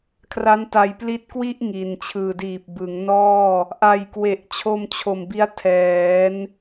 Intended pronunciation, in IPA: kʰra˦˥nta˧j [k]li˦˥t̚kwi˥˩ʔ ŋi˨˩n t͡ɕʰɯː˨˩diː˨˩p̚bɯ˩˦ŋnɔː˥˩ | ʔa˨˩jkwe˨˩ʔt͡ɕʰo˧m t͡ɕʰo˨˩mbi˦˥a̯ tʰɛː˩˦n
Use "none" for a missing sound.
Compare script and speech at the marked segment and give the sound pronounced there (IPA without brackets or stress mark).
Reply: p